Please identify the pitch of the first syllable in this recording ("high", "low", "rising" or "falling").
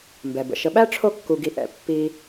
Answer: low